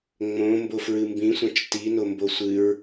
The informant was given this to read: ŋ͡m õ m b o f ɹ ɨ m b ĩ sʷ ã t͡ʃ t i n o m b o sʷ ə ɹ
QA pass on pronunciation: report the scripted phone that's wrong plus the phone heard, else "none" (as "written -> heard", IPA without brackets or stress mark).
ə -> ɨ